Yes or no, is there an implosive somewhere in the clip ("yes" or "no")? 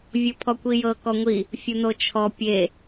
no